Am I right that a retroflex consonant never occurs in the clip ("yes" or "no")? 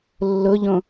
yes